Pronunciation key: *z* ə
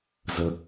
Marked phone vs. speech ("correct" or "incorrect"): correct